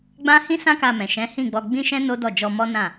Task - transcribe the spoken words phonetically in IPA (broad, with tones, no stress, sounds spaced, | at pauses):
ɡ͡b ã˦ h ĩ˦ s ã˦ k a˧ m ɛ̃˨ ʃ ɛ̃˨˦ h ĩ˦˨ ɡ͡b ɔ˧ ɡ͡b ĩ˦ ʃ ɛ̃˦ n o˦ d ɔ˦˨ d͡ʒ ɔ˧ m ɔ˦ n ã˦˨